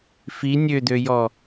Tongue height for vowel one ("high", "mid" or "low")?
high